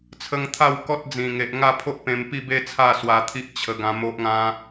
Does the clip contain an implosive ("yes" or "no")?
no